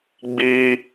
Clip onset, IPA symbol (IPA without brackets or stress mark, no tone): ɡ͡b